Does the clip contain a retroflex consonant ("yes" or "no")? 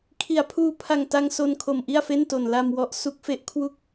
no